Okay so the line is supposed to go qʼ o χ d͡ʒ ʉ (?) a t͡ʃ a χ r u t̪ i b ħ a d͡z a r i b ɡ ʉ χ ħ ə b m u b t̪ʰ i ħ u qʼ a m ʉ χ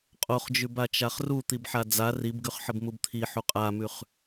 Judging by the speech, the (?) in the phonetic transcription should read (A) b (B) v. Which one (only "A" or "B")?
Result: A